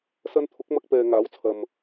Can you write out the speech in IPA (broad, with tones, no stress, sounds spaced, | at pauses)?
s ɐ˧ n t̪ʰ ʊ˨˥ k̚ m ɐ˧ k̚ p ɛː˨ ŋ aː˨˥ w t͡sʰ ɐ˨ m